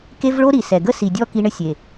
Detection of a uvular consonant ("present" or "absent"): absent